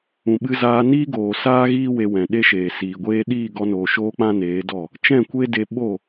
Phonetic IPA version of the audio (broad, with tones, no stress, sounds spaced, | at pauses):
ũ˨ ɓ ɨ˧ z aː˧ n iː˦ ɡ oː˨ s aː˦ ɣ iː˦ w e˧ w ɛ̃˨ ɗ e˦ ʃ eː˨ s iː˨ ɡʷ eː˦ ɗ iː˦˨ ɡ ɔ˧ n oː˨ ʃ oː˦ k͡p ã˦ n eː˨˦ d ɔ˦˨ | t͡ʃ ɛ̃˦˨ kʷ e˦ d e˧ ɓ o˦˨